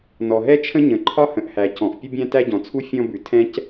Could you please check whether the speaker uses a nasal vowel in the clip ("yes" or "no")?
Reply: yes